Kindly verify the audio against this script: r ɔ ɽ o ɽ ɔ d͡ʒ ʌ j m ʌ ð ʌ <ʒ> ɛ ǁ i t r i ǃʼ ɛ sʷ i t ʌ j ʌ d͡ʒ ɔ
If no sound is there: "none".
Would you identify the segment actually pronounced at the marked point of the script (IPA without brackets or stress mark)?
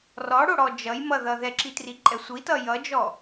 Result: ð